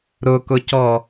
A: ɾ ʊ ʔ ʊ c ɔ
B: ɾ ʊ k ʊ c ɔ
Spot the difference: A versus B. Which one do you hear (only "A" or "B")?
B